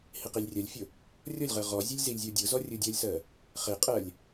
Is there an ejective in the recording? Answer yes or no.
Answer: yes